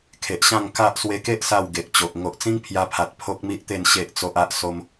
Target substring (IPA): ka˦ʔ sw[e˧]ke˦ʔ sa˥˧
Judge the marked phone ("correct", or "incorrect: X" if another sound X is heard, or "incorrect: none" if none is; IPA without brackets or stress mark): correct